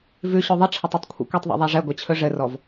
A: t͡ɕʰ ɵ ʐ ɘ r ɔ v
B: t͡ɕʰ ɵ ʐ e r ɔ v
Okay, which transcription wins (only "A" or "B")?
A